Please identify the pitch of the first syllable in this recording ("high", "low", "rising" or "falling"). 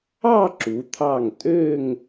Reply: falling